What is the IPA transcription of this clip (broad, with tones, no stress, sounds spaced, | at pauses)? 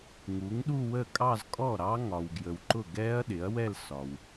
ŋ u˩˥ ŋ ɗ u˥˧ w ə˥˩ kʼ ɑ˥˧ z kʼ ɔ˥˩ ɾ ɑ˦˥ ŋ ɒ˨ w ɡ j ə˨ w ǃ ʊ˥˩ ɡ ɛː˦˥ ɐ̯ ɗ ɪ˩˥ ɐ̯ w ɛ˥˧ l s ɒ˨ w